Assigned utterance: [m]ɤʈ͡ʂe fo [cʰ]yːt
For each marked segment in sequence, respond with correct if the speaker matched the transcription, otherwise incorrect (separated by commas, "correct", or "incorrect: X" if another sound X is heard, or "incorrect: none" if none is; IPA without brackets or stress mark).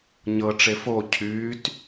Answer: incorrect: ɲ, correct